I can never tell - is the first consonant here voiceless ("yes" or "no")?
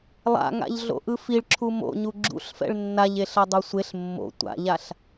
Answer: no